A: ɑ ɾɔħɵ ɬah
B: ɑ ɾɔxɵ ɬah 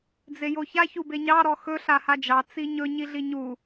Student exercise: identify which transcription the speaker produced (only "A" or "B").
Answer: B